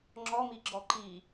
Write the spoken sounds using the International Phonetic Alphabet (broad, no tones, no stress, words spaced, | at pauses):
ŋ͡ǁɔmi ɡ͡ǁɔǃi